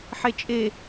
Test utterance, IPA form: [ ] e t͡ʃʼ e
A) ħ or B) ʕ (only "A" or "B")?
A